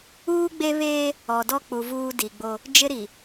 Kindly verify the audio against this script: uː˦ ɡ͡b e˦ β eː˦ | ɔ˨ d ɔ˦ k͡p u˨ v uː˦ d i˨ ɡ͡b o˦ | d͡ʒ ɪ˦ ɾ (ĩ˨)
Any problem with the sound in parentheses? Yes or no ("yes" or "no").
yes